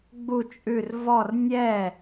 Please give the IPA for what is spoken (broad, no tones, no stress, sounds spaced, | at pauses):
ɡ͡b u t͡ʃʼ ʉ r v ɔ r nʲ ɛ